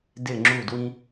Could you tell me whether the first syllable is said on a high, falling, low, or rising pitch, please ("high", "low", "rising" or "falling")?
falling